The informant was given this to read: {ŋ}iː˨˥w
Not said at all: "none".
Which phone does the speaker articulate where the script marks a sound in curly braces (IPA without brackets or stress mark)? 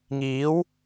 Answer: ŋ